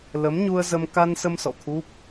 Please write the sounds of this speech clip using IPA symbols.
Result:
l ə˨˦ m ɲ u˧ ə̯ z ə˧ m k a˧ n s ə˧ m s ɔ̰˧˨ t̪ʰ u˦˥ p̚

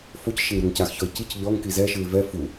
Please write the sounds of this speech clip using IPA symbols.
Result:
f o c ʃ e ŋ ɾ o ŋ c a x ç ɔ ɪ̯ c i c ʎ ɔ ŋ k i z ɛ ʃ ɯ ɪ̯ v ɛ f u

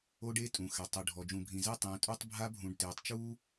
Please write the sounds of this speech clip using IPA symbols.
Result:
o˦ ɖ e˦ tʼ ũ˨ x ɛ˨ tˤ ɯ˨ ɖʱ ɔ˨ d͡ʒ ũ˨ bʱ ĩ˨ z e˦˨ tˤ ĩː˨ tʼ o˦ tˤ bʱ a˦ bʱ ũ˨ ɖ t eː˨ tˤ t͡ʃ uː˦

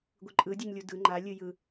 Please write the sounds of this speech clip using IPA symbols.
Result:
ɡʷ ɯ ǃʼ ɯ dʲ u ɲ lʲ u d ɯ ŋ͡ǃ a lʲ ɨ j ɯ

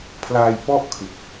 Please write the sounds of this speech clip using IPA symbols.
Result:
pʰ l aː˧ j p ɔ˥˩ ʔ kʰ ɯ˨˩ k̚

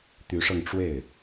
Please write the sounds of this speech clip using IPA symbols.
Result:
t̪ y˧˥ ʂ ɤ˧ ŋ ʈ͡ʂ w e˥˩ ɪ̯

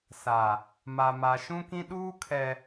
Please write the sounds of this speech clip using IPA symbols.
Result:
s a˨ | m a˨ m a˨ ʃ ũ˦ k ĩ˦ ɗ uː˦ kʰ ɛ˨

